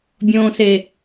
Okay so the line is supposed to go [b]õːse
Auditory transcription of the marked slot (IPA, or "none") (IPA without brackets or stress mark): bʲ